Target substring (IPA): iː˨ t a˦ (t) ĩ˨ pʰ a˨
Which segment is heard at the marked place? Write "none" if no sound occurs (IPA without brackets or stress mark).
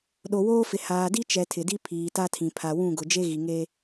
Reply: tʰ